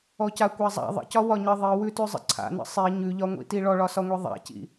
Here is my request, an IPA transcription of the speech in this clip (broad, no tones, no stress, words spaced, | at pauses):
ɔcakʷazˤa̰ ðˤə̰cɒ wɒɲə ðˤiwʉtʉzˤə̰ ǀʰa̰nə̰ sˤi ɲʉʎɒŋʷḭti ɭɔɭɒsɒŋʷi ðˤa̰cḭ